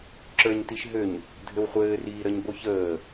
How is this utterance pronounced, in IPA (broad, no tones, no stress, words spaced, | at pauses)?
ǁə˞ɲtiʃɦøɲ | dʱɘwχʷɘːriːɾəɲ boçəː